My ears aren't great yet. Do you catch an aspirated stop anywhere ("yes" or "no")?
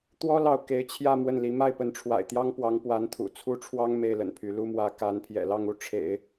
yes